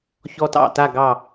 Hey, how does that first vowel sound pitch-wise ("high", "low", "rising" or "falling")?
high